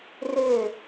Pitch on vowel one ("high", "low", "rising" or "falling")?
falling